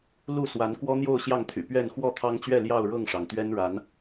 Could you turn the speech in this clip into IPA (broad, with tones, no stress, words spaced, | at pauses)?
lu˥˨ swa˨˦n kwɔ˦n̪jo˥˨ʊ̯ ɕjɑ˥˨ŋt̪ʰy̰˨˩ pɥɛ˥˨n xwɔ˥˨t̪ʰɑ˦ŋt͡ɕɥɛ˥˨ ljɑ˥˨ʊ̯ ɻɤ˥˨ŋʂɑ˩ŋt̪ɥɛ˦n ɻa˨˦n